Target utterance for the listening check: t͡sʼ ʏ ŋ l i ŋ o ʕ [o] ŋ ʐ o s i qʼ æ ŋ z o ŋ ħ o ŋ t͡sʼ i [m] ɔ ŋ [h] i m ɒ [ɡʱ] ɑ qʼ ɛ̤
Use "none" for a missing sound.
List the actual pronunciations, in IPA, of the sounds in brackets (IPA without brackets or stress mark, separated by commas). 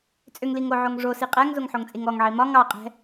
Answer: o, ŋ, ʕ, ŋ